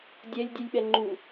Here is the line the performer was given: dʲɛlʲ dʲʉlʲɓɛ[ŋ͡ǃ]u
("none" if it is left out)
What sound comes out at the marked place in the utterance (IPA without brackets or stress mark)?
ŋ͡ǃ